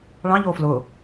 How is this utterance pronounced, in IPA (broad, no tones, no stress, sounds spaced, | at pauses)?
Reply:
ɭ ɑ̃ ʎ o f l ʊ